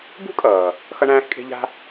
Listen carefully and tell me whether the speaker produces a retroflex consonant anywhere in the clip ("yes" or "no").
yes